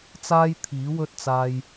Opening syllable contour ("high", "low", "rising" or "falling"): high